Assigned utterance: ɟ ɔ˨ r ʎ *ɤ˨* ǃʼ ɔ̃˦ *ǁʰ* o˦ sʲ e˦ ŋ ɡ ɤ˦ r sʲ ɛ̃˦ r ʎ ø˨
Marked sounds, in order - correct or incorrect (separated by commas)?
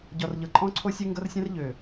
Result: correct, incorrect